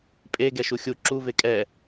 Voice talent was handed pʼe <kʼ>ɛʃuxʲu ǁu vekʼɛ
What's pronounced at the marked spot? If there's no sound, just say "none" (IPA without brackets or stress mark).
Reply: ɡ